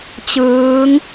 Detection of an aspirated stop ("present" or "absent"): absent